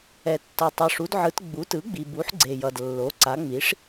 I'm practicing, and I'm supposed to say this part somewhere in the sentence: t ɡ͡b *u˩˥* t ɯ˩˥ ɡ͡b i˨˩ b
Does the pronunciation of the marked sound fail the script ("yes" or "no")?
no